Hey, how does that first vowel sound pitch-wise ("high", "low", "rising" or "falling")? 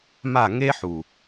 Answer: falling